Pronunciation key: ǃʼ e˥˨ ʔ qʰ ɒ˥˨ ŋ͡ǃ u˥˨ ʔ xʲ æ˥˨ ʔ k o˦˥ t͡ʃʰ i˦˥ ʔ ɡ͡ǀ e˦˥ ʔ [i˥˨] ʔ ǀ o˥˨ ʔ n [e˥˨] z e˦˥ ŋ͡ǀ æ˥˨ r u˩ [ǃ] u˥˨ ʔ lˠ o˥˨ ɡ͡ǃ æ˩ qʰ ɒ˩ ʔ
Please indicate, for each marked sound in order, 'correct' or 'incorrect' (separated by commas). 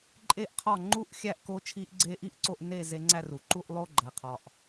correct, correct, correct